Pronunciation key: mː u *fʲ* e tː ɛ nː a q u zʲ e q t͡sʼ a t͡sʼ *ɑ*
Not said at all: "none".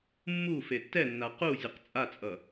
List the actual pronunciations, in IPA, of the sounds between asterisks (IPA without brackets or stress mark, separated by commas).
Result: f, ʌ